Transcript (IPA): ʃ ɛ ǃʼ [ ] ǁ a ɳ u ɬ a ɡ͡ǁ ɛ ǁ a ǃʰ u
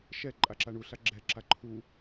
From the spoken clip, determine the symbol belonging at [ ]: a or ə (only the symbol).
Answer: a